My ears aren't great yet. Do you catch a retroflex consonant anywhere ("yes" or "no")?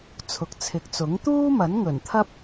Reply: no